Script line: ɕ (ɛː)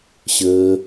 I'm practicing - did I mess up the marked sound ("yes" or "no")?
yes